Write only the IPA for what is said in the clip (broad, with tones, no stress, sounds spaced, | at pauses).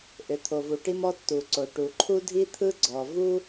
ʔ ʏ˩ t̪ʰ o˩ v u˩ ʈ i˥ m ɔ˥ tː u˩ ǀ o˩ ʈ u˩ ǃʰ u˥ dʱ i˥ t̪ʰ ɯ˥ ɡ͡ǀ ɔ˩ v u˥